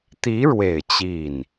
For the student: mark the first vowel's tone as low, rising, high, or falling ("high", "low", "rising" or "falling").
rising